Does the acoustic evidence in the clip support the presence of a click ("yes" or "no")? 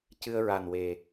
no